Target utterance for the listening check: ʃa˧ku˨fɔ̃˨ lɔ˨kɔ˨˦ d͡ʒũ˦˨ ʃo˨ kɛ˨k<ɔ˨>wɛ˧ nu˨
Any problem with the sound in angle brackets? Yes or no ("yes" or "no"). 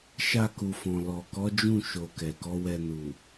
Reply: yes